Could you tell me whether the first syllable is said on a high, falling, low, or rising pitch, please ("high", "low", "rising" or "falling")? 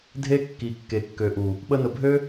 high